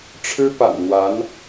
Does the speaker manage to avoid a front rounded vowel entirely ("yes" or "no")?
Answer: yes